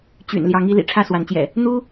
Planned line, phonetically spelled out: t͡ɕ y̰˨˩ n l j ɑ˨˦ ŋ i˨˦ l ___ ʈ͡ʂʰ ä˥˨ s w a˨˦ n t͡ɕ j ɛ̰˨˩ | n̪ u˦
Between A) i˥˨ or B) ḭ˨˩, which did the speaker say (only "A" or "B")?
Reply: B